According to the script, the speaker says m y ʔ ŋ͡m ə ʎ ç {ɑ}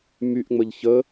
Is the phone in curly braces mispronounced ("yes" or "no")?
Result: yes